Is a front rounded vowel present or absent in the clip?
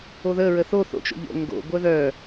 present